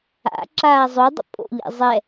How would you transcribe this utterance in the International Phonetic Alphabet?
a̰ ǁ aː zˤ o dˤ ə̰ pʼ o̰ ʎ ɛ̰ zˤ ɛ

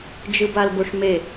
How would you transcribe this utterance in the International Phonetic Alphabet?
d͡ʒ ɯ b a l b o ʂ m e

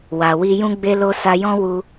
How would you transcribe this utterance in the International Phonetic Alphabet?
w a˨ w i˧ j ũ˦ ɡ͡b e˧ l o˧ s a˧ j ɔ̃˦ w u˧

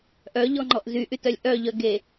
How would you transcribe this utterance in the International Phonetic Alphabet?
ʔ œ ʎ ɔ ŋ͡ǃ ɔ ʔ z y ʔ y t œ lʲ ʔ œ ʎ œ ɡ e

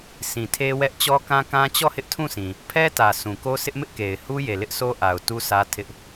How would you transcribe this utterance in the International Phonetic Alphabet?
sʰ ĩ˨ tʰ e˦ w ɛ˦ ʔ t͡ɕ ɔ˦ k ã˦ k ã˦ t͡ɕ ɔ˦˨ h ɪ˦ ʔ tʰ ũ˦˨ sʰ ĩ˨ | pʰ ɛ˦ t ä˨ sʰ ũ˨ k o˦ sʰ ɪ˦ ʔ m ɪ˦ ʔ k e˨ ɪ̯ h u˦ j e˨ l ɪ˦ ʔ sʰ o˦ ʔ a˨ ʊ̯ t u˦ s ä˦ tʰ ɪ˦ ʔ

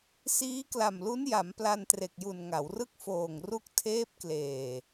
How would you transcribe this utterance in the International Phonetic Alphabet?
s iː˦˥ k l a˨˩ m l u˦˥ n j a˩˦ m p l a˧ n t r e˨˩ k̚ j u˨˩ n ŋ a˩˦ w r ɯ˥˩ k̚ f oː˨˩ ŋ r u˦˥ k̚ tʰ eː˦˥ p̚ k l eː˨˩

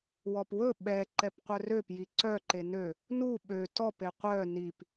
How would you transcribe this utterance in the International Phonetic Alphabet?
w ɔ p w ɵ ɓ ɛ ǃ ɛ p qʷ œ r ø p j i ǀ œ ǃ e n ø | n u ɓ ø t ɔ p e qʷ œ n i p

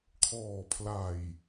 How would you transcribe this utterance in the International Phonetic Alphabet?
kʰ ɔː˨˩ pʰ l a˨˩ j

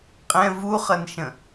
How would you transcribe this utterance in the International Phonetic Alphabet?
qʼ ɛ̃ v u χ ʌ n ʃ ə̃

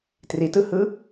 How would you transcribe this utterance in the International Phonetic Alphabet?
t r i t ɯ h ɯ

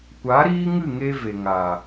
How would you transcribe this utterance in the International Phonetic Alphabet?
kʷ a˨˦ ɾ iː˦ ŋ ɨ˦˨ ŋ e˧ v e˨ ŋ aː˨

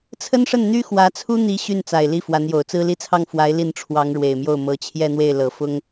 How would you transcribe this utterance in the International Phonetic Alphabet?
t͡sʰ ə˥ n ʂ ə˥˩ n n̪ y˥ x w ä˧˥ t͡sʰ u˥ n̪ i˧˥ ɕ y˥˩ n t͡s a˨˩ ɪ̯ l i˥˩ f w a˧˥ n j o˨˩ ʊ̯ t͡s ɹ̩˥ l i˥˧ t͡sʰ ɑ˥˩ ŋ f w a˧˥ ɪ̯ l i˥˩ n ʈ͡ʂʰ w ɑ˧˥ ŋ ɻ w e˨˩ ɪ̯ m j o˥˩ ʊ̯ m ɤ˧˥ t͡ɕʰ j ɛ˥˧ n̪ w e˥˩ ɪ̯ l ɤ˨˩ f ʊ˥ ŋ

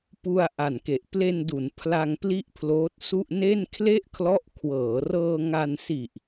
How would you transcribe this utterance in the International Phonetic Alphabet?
p u˧ a̯ ʔ a˨˩ n k e˨˩ ʔ p l e˧ n d u˩˦ n pʰ l a˧ ŋ p l i˥˩ ʔ pʰ l oː˦˥ t̚ s u˥˩ ʔ n e˥˩ n kʰ l e˥˩ ʔ kʰ l ɔ˦˥ ʔ kʰ w ɤː˩˦ r ɤː˧ ŋ a˧ n s i˨˩ ʔ

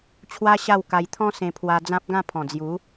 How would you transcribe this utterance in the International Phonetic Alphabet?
t͡ɕʰ w a˦ ɕ a˥˧ w k a˧ j t̪ʰ ɔ̃˦ s ẽ˧ pʰ w a˧ d͡z ã˦ p̚ ɡ ã˥˧ pʰ ɔ̃˨˩ d͡z j u˨˦

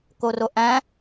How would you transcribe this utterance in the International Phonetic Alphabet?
k o r o ʔ æ̃

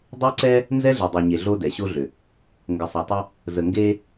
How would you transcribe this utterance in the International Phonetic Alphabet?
dˤ e˦ ǀ ɛ˦ | n z ɛ˦ ɮ ɛ˨ dˤ e˨ ɲ e˨ ɮ o˦ d ɛ˨ ɕ o˦ ɮ ʏ˨ | ŋ ɡ ə˨ sˤ e˨ tˤ ə˦ | z ə˨ ŋ ɡ e˦

